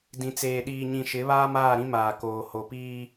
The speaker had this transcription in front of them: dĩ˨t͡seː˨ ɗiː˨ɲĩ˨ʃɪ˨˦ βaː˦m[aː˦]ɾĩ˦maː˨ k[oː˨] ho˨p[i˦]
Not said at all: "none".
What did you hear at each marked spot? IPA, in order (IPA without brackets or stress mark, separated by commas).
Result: aː˦˨, oː˨, iː˦